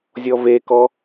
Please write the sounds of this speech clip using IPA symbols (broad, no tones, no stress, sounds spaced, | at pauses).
zʲ ɔ v e k ɔ